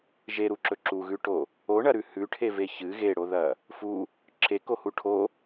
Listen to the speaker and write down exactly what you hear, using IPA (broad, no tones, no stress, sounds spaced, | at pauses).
ʒ e ɾ u ǁ ɵ ǁ u ɣ ʉ ʈ o | o ɳ ɐ ɾ ʉ h ʉ ʈʰ e v e ç ɨ ɣ e ɽ o ð ɐ | f u | ǁʰ e k o h u ʈʰ o